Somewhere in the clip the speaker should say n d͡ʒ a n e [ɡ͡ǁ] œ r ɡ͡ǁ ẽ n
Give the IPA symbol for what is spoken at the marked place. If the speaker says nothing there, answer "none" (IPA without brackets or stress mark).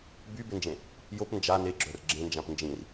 ɡ͡ǁ